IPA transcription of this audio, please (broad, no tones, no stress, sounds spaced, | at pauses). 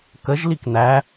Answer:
k ə ʒ l i k n æ